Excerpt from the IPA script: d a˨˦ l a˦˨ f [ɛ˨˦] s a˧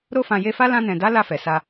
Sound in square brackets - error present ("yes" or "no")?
yes